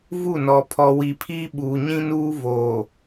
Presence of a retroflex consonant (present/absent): absent